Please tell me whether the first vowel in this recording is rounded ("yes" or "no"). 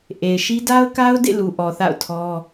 no